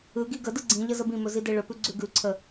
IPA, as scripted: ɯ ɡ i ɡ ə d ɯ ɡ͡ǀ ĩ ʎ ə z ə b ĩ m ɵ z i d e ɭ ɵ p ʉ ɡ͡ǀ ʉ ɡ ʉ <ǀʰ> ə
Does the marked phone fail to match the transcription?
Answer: no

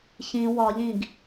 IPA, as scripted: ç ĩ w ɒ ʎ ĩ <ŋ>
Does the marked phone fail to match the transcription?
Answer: yes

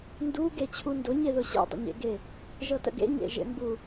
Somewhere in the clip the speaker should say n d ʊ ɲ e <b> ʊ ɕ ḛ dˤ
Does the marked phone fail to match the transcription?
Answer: yes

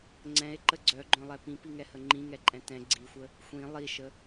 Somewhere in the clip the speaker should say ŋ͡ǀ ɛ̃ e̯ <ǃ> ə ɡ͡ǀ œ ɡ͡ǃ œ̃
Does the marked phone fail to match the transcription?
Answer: no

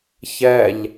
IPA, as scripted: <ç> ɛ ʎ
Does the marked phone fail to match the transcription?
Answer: no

